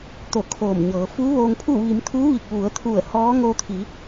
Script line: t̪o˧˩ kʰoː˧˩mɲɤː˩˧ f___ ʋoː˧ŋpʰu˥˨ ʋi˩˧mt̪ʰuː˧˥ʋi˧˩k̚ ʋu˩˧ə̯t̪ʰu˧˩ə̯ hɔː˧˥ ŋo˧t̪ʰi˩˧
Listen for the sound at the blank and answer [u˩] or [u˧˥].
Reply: u˧˥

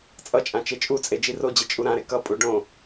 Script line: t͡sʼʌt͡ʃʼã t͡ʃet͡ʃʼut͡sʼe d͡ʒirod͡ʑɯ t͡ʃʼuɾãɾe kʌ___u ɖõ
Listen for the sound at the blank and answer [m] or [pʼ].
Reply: pʼ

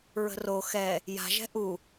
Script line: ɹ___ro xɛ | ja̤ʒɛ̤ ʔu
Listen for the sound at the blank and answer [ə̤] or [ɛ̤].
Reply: ə̤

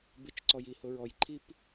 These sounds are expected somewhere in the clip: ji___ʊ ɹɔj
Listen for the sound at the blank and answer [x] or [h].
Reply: h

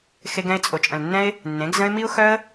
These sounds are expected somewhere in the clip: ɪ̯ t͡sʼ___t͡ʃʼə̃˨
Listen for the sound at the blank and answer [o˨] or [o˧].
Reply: o˨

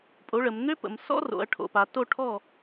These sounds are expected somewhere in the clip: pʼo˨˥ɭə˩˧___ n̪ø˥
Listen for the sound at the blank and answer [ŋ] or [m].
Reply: m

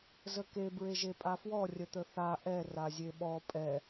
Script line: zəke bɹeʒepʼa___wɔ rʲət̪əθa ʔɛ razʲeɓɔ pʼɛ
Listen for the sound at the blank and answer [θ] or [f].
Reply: f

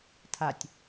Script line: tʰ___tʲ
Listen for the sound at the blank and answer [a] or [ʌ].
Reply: a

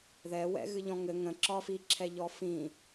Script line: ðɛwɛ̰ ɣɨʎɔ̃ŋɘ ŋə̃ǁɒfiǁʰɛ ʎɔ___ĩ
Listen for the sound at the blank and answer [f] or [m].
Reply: f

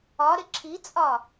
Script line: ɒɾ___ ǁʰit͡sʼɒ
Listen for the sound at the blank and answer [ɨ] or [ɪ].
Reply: ɪ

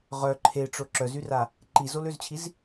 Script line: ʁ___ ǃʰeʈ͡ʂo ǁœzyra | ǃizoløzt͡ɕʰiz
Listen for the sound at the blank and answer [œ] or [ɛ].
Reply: œ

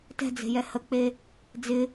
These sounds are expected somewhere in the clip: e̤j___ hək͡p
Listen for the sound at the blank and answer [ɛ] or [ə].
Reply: ɛ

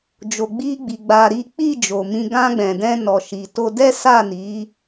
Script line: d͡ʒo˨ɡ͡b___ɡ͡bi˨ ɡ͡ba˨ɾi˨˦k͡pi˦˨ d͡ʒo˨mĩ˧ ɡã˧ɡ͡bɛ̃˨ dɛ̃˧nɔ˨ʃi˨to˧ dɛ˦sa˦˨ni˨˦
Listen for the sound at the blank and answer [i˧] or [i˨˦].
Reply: i˧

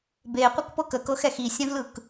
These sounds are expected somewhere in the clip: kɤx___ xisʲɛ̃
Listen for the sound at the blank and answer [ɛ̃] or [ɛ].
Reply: ɛ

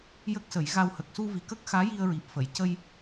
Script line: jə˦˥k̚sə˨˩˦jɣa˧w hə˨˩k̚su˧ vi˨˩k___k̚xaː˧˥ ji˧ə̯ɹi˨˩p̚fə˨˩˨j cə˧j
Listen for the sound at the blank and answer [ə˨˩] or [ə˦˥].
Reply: ə˦˥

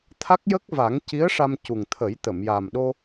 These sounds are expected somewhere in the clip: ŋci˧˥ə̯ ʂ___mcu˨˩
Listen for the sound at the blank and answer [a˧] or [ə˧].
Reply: a˧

